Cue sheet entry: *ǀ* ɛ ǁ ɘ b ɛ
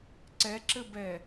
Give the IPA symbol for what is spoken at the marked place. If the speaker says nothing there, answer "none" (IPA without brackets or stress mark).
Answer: ǀ